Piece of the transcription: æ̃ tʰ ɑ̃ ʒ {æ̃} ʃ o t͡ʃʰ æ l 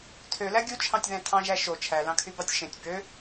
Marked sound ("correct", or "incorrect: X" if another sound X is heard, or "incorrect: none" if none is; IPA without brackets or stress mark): incorrect: æ